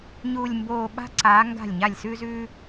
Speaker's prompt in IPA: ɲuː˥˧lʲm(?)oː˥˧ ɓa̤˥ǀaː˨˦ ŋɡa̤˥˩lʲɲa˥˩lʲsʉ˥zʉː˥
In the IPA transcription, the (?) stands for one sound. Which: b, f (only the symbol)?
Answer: b